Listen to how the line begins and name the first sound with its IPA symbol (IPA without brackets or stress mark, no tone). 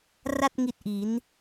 r